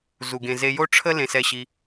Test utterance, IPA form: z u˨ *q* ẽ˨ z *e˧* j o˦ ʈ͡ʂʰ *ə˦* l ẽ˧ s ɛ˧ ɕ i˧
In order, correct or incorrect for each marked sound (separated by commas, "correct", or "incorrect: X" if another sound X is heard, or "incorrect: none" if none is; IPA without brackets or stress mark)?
incorrect: ɡ, correct, correct